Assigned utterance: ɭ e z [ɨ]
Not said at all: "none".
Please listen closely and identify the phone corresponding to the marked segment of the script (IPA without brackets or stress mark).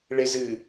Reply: ɨ